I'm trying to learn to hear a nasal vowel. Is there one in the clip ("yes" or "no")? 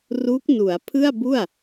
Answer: no